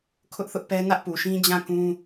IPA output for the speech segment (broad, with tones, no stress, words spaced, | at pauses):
kʰʊ˦ʔθʊ˦ʔpɛ˦ nä˦ʔpu˨ʃĩ˦ d͡ʑã˦˨kũ˦